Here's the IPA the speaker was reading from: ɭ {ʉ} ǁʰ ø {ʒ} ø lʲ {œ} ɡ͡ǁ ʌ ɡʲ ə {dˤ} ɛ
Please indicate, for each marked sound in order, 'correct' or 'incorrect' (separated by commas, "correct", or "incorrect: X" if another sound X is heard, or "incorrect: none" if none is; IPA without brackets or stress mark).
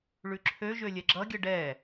correct, correct, incorrect: ɛ, incorrect: ɖ